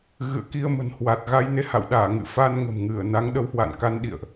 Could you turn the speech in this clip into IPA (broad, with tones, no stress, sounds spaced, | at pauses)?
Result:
ɣ ɨ̰˧˨ ə̯ k i˧ ə̯ m ə̤˨˩ n h w a˨˩ t̚ ɣ a˧ j n e˧ h a̰˧˨ w ɗ aː˧˩ ŋ ɨ̰˧˨ f a˧ n ŋ ə̤˨˩ m ŋ ɨ˧˩ ə̯ n a˨˦ ŋ ɗ ə˨˦ w h w a̰˧˨ n k a˧ n ɗ ḭ˧˨ ə̯ ʔ